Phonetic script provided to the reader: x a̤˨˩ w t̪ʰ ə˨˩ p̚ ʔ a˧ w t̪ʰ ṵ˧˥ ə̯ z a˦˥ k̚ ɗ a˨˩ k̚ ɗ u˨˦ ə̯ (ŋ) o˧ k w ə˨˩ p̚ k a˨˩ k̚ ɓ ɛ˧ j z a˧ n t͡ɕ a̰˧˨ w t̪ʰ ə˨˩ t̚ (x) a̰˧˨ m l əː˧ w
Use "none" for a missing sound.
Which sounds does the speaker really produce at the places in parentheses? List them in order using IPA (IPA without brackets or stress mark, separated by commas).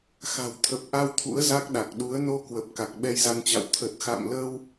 n, x